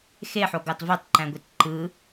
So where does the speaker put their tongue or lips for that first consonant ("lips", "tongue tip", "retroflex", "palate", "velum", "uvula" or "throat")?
velum